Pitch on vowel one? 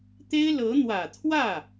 high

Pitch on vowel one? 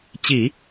low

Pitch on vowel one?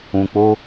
low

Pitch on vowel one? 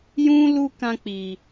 high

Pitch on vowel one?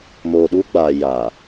low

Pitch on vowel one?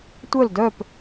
falling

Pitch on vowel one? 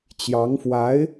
rising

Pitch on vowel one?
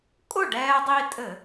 falling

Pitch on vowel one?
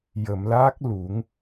low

